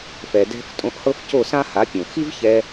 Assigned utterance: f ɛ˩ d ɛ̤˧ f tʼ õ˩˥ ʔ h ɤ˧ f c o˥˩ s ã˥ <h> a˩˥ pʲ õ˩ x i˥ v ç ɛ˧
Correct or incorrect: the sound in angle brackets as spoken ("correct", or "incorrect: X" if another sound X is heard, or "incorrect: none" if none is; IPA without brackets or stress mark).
correct